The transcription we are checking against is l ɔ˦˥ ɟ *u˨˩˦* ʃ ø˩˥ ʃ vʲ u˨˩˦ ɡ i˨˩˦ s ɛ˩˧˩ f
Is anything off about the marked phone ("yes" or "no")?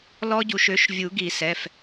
no